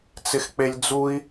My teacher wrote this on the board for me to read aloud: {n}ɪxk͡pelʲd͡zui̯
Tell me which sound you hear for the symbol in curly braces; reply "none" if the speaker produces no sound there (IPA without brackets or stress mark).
t͡s